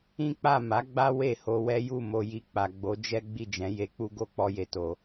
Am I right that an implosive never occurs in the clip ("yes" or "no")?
yes